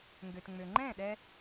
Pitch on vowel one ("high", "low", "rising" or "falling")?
low